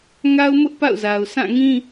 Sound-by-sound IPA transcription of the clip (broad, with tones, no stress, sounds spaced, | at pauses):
ŋ a˦ ʊ̯ m ʊ˦ ʔ p a̰˦˨ ʊ̯ z a˨ ʊ̯ sʰ ã˦˨ ŋ ĩ˦